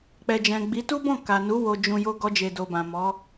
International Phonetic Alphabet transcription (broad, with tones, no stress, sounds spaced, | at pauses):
k͡p ɛ˨ d͡ʒ ɛ̃˨ ɡ͡b i˨˦ t u˦ b ɔ̃˦˨ k a˨ n u˨˦ w o˧ d͡ʒ ũ˧ j o˦ ɡ ɔ˦ d͡ʒ e˧ d o˧ b ã˨ m ɔ˨˦